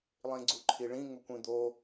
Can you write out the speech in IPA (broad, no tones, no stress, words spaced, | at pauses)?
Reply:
lˠĩɡ͡ǀuǃʰiɭĩ ŋʊkʷĩd̪o